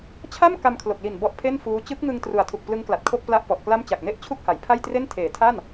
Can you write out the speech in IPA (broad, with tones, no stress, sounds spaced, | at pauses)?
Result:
t͡ɕʰ a˥˩ m k a˧ m kʰ l o˨˩ k̚ l i˨˩ n b ɔ˦˥ ʔ pʰ e˥˩ n f uː˦˥ t͡ɕ ɯ˦˥ k̚ ŋ ɯ˧ ŋ t r u˨˩ a̯ tʰ u˨˩ k̚ p l ɯ˦˥ ŋ k l a˨˩ t̚ kʰ o˥˩ k̚ p l a˥˩ ʔ p ɔ˨˩ ʔ k l a˥˩ m t͡ɕ a˨˩ k̚ n e˦˥ ʔ t͡ɕʰ u˥˩ k̚ h a˩˦ j pʰ a˥˩ j t r e˥˩ n tʰ eː˩˦ tʰ a˥˩ n